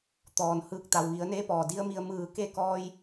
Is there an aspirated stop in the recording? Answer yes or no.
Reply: no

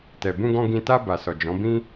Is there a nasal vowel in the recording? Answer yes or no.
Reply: yes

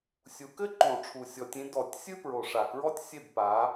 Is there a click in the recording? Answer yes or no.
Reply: yes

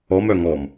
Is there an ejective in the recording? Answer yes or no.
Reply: no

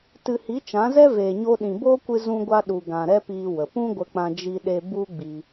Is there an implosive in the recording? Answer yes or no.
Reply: yes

